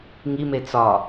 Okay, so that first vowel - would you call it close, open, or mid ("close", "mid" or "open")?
close